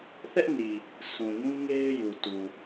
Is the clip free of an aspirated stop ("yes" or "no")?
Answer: yes